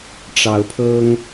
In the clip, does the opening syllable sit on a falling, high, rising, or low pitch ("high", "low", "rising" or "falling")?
rising